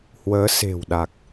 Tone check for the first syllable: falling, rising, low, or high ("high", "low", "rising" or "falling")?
rising